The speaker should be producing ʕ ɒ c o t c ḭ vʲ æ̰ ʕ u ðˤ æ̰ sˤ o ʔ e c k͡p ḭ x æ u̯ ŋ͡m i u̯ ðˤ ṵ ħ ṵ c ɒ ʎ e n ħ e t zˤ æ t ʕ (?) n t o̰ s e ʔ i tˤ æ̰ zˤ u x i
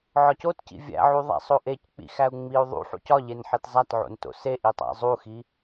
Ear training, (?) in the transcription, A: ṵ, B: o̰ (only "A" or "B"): B